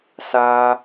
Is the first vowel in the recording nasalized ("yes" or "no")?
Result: no